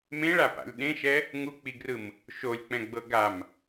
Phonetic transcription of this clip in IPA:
m ẽ ɭ a p a̰ lʲ ɗ ẽ ʃ ɛ | ŋ u k͡p i ɡ r ɯ m | ʃ o lʲ k͡p ɛ̃ ɡ͡b ɤ ɡ a m

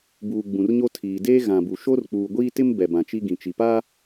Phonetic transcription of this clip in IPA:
b uː˨ ɡ͡b ũ˨ r ɲ o˦ tʰ iː˨ d eː˦ ɣ ã˨ b u˨ ʃ o˦ r k͡p uː˨ ɡʷ iː˦ t ɪ˦ m b ɛ˨ b ã˨ t͡ʃ i˦ ɡ ĩ˨ t͡ʃ i˨ p aː˦

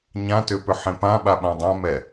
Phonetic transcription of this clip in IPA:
ɲ ã t ʏ p ʏ ħ ẽ p ã ɓ a ɓ ã dˤ ã m ɛ

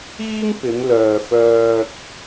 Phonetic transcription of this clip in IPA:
iː˥ ŋ p ɪ˨˧ ŋ l œː˨ f œː˧ k̚

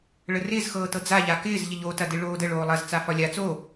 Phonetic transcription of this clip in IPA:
ɭ ə r ɪː z x ɤː t ɤ d͡z a ʎ a k ɪː z ʎ ə ʎ o t ɐ d ɪ ɭ oː d ə ɭ oː lˠ ɐ z t͡s a f ɒ lʲ a t͡s o

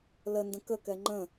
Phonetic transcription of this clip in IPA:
l ə n d ə̃ k ə k ɛ ŋ͡ǃ ə̃

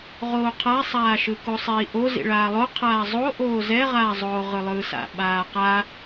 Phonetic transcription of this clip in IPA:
ʁ oː qʰ a sˤ aː ʃ ɯ k o sˤ iː ʔ o z ḭ ɭ aː lˠ o qʰ aː zˤ o ʔ oː z ɛ ʁ aː zˤ oː ʁ ɯ lˠ ɯː s a̰ ɓ aː q a

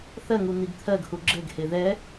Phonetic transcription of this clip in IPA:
θ ɜ ŋ u n̪ i ɡ t̪ʰ ɜ ɡ h u ɡ͡ǁ ɘ ɡ h e ð ɛ

